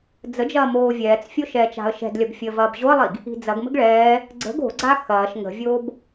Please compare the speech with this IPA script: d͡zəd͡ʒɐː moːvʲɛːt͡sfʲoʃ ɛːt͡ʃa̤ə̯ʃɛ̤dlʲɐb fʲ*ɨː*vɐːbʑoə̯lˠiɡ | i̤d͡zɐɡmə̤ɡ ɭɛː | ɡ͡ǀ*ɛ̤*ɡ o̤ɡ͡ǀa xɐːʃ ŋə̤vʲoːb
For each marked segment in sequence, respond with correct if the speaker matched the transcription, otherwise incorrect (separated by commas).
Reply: incorrect, incorrect